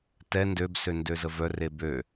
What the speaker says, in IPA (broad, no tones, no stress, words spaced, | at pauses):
tɛ ndøbsø ndøzəvœre bø